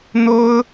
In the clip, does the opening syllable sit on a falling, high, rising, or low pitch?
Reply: high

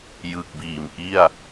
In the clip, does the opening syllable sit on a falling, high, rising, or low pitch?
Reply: low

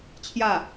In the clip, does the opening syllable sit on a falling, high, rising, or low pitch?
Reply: falling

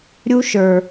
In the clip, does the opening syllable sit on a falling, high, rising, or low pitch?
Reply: high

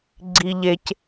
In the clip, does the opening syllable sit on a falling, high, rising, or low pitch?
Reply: low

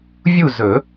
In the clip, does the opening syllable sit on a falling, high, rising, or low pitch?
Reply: falling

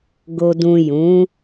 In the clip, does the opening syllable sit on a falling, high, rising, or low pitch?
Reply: low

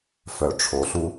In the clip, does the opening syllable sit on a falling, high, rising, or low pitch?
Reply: low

